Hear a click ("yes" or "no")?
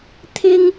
no